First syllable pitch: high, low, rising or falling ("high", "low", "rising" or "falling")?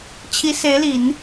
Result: rising